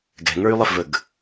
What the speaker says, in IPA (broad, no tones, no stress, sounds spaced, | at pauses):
ɡ ɛ̤ ŋ ə˞ y̯ lˠ e f v ə ɡ